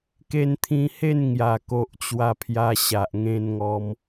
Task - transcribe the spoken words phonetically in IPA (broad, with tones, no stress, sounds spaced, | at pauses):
k e˧ n t̪ʰ ĩ˧ h e˥˧ n ŋ j a˨˩ k o˨ ʔ t͡ɕ w a˧ pʰ j a˧ ɕ a˨ ʔ ŋ ẽ˧ n ŋ ɔ˧ m